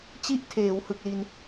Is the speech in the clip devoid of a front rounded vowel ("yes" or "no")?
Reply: yes